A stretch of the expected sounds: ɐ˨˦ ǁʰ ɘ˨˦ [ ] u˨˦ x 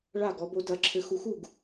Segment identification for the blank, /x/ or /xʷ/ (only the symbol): x